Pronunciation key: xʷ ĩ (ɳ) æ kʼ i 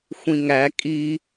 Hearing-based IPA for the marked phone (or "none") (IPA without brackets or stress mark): ŋ